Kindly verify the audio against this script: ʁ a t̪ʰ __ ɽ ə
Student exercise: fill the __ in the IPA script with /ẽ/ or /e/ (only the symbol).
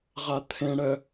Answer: ẽ